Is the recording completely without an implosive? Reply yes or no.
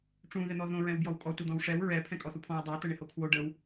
yes